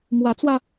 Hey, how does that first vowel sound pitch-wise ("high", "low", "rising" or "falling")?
rising